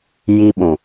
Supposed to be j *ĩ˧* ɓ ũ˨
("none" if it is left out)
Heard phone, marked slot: i˧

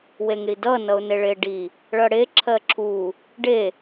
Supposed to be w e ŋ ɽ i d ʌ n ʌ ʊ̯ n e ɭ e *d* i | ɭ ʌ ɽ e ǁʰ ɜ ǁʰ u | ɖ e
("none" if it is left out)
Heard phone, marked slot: ɖ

